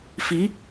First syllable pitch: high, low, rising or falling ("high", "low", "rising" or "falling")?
rising